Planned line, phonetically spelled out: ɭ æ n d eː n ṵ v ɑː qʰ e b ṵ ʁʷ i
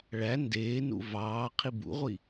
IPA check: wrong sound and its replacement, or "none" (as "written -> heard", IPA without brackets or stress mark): e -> i